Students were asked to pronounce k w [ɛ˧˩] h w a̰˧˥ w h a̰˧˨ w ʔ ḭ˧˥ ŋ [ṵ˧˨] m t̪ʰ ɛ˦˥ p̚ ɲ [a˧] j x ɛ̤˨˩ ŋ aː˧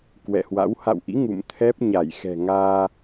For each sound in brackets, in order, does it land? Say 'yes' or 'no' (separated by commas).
no, yes, no